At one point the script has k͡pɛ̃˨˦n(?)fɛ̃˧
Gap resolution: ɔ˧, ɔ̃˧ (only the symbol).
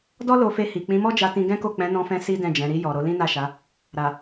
ɔ̃˧